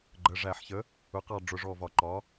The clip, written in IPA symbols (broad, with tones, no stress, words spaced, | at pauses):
ɡ͡ǃə˩˧˩ʐæ˧˩˧ħçə˩˥ | ʊ˩˥qɑ˧˩ ɖ͡ʐʊ˧˩˧ʐɔ˧˩vɒ˧˩˧ǃɒ˩˥